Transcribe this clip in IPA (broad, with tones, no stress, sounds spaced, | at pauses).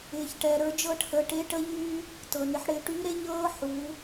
ɪː˩ ç ʈ ɛ˩ ɾ ə˞˩˧ d͡ʒ ɤ˧ ʈʰ ə˩˧ ʈ e˧˥ ʈ ə˥ ʎ yː˥ | t ɤ˩ n ɪ˩˧ ħ ɽ ɪː˩˧ ʈ yː˧˥ ɾ e˥ ʎ ɤː˥ ħ u˩˧